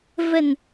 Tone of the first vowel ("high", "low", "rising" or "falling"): low